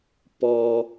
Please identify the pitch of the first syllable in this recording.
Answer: low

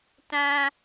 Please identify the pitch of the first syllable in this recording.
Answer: high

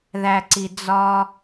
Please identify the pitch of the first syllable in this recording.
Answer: low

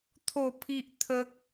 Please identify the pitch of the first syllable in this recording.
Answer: falling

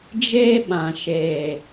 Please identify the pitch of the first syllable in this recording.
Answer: high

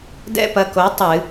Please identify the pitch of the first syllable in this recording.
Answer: high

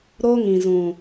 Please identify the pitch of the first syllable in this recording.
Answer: high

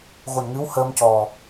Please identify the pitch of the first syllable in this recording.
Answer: low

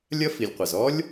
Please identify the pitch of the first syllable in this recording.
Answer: high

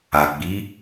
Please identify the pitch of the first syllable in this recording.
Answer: low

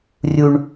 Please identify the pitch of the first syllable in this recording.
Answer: low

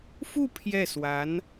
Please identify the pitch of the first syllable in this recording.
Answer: falling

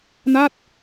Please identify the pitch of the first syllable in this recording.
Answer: falling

